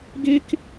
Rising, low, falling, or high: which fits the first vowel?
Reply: high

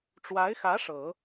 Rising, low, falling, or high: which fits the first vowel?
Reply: rising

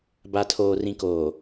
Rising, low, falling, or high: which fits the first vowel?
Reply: low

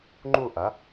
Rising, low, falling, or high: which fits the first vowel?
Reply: falling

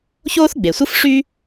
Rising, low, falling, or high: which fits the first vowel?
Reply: high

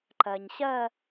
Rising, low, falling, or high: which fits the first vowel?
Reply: low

